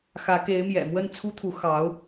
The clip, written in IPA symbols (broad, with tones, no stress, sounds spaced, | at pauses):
x ä˧˥ k e˧˥ ɪ̯ m j ɛ̰˨˩ m w ə˥˩ n t͡sʰ u˥ t̪ʰ u˧˥ x ɑ˧˥ ʊ̯